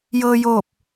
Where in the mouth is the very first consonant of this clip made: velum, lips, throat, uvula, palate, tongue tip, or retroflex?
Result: palate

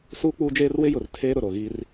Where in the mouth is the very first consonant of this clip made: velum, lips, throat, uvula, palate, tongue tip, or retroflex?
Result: tongue tip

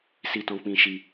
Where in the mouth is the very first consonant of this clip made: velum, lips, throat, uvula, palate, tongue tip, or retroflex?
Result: tongue tip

